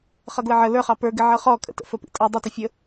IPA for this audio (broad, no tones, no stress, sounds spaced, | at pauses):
χ ʌ ɡ l ə ʕ ə l ə˞ χ ɑ p ə˞ ɡ ɪ ʕ ʌ χ ɔ kʼ ə̰ t ə̰ f ə p ḭ tʼ ʌ dˤ ʊ t ʊ fʲ ə